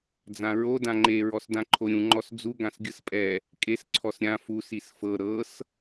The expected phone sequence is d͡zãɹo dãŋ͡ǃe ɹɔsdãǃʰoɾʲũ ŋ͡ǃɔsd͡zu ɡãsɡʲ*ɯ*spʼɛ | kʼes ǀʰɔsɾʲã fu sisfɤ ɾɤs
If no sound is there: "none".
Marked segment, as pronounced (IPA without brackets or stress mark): ɯ